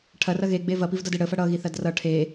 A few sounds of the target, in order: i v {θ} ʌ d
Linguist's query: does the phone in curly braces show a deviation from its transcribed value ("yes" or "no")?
yes